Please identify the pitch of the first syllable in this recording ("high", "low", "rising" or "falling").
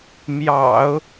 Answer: low